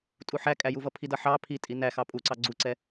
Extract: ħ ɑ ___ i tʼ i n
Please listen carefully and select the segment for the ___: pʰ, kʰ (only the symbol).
pʰ